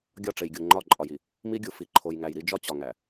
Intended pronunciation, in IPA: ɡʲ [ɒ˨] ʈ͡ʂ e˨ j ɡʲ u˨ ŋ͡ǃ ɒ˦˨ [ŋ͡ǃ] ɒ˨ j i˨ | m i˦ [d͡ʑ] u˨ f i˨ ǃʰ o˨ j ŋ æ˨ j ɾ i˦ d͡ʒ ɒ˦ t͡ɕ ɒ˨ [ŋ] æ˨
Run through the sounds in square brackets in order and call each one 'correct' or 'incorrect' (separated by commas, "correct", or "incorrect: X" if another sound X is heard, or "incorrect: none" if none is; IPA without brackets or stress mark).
incorrect: ɒ˦˨, incorrect: ǃʼ, incorrect: ɡʲ, correct